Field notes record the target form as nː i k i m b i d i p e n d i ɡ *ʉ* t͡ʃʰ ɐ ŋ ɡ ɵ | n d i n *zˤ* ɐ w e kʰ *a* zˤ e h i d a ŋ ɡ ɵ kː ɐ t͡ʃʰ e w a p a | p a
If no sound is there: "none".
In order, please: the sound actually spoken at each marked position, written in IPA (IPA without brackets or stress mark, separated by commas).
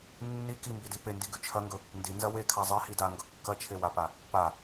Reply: ʉ, z, a